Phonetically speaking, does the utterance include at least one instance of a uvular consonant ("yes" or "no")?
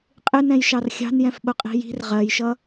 yes